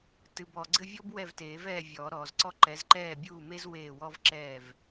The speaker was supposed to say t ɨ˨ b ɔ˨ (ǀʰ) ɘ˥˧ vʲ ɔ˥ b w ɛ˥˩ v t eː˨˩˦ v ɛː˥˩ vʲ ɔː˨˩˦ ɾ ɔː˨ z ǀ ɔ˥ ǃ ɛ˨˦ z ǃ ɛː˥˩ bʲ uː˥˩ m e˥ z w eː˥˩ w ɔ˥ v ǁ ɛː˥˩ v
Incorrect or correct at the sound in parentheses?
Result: incorrect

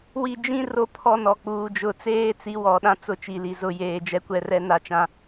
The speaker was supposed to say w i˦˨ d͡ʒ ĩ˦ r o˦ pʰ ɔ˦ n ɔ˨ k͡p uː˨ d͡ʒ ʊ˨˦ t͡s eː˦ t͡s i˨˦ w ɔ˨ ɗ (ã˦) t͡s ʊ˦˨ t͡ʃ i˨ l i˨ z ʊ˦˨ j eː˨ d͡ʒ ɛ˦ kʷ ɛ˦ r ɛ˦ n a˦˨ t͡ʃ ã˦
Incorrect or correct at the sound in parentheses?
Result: correct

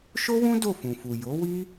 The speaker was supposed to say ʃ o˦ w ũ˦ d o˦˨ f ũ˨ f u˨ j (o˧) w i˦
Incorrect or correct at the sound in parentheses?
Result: incorrect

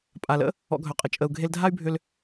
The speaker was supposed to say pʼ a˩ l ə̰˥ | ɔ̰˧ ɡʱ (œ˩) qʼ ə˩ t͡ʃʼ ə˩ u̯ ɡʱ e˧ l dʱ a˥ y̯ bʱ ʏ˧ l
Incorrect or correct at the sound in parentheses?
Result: correct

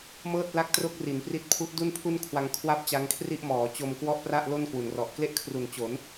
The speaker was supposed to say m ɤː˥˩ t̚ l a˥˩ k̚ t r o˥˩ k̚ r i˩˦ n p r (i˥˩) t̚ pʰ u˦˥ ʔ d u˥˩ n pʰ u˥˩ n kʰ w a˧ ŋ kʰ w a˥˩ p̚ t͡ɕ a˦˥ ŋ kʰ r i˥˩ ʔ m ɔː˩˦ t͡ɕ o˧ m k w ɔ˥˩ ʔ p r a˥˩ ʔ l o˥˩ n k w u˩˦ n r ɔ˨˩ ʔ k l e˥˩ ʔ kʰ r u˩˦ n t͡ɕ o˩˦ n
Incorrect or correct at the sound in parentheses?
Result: incorrect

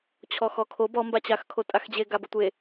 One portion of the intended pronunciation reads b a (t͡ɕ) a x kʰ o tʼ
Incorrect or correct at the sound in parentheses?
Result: correct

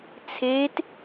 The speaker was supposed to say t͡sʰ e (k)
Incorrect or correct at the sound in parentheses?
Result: incorrect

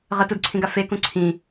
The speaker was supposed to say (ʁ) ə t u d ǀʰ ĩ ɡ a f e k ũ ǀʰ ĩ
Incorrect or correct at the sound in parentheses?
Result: correct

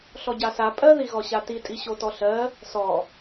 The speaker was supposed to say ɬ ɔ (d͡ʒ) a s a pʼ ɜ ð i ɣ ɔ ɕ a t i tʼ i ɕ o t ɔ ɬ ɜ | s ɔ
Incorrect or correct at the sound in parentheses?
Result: incorrect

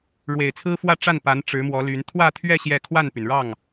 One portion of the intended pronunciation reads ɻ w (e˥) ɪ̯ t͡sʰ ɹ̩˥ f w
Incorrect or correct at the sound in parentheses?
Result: incorrect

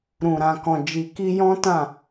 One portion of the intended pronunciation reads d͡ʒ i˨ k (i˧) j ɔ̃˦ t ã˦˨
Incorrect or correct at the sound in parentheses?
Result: correct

